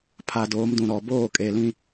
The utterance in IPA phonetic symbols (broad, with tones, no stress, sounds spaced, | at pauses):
pʰ a˨ d oː˨˦ m d ũ˨ ɾ ɔ˨ b oː˦˨ kʼ e˨ l ĩ˦